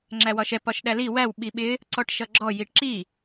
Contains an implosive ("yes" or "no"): yes